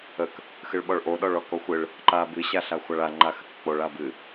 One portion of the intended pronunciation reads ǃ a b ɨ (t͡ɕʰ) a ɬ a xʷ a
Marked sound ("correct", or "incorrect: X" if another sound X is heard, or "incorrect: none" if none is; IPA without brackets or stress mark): incorrect: ɕ